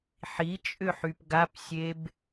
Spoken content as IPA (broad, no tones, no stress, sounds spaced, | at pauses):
ħ i t͡ʃʼ ʏ ħ y p ɡ a p sʲ e b